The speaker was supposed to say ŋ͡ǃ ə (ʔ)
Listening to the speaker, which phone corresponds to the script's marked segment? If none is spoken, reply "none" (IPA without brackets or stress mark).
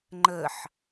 ħ